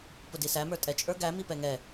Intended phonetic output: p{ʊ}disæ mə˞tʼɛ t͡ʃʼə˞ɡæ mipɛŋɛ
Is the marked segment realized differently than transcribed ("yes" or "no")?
no